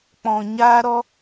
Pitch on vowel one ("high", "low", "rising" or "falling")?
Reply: low